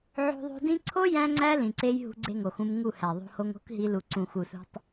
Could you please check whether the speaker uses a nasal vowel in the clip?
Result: yes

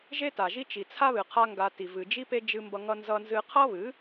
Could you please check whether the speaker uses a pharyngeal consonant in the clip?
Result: no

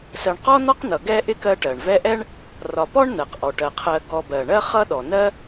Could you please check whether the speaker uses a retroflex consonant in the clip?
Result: yes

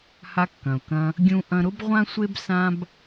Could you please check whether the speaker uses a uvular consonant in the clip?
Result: yes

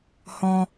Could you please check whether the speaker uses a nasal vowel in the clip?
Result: yes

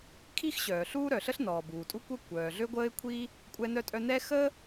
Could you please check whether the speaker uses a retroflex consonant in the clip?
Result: no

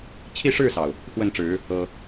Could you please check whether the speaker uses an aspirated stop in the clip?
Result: yes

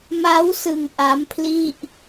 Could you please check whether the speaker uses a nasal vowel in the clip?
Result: no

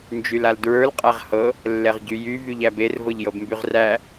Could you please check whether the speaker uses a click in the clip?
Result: no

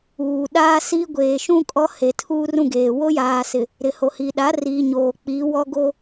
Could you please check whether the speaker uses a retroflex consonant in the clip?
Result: no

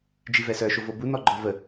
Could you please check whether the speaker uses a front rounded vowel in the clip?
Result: yes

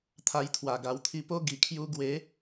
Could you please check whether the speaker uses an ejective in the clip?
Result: no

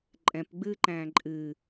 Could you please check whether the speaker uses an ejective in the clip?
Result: yes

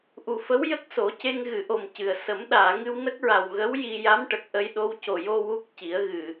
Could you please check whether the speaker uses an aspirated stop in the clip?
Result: no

